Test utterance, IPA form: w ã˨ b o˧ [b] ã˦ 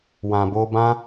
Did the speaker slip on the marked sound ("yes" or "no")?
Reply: no